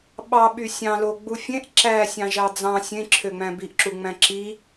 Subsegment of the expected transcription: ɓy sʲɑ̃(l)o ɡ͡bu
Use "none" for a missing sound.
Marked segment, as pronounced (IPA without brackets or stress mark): l